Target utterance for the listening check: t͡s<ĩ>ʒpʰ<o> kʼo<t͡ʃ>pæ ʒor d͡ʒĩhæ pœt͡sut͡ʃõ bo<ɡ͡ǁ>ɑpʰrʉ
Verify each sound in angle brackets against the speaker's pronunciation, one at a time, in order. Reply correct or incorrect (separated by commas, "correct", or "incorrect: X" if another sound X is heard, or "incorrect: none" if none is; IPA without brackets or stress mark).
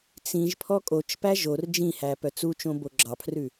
correct, incorrect: ɔ, correct, correct